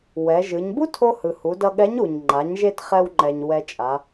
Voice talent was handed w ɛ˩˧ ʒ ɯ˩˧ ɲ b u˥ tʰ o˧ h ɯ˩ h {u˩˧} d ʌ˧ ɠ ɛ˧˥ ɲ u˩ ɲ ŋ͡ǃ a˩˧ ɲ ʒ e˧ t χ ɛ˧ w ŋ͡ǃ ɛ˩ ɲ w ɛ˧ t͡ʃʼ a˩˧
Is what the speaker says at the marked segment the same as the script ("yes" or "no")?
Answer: yes